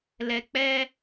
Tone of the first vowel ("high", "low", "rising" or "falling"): low